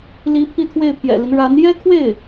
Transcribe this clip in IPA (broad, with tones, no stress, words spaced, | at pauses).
li˧˥ pʰi˥˧t̪ʰwe˥˩ɪ̯pʰjɛ̰˨˩li˦n ɻa˧˥n jɛ˥kʰwe˥˩ɪ̯